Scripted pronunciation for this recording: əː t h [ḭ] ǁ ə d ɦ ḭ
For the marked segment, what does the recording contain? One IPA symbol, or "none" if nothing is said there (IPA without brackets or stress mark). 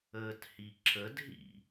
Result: i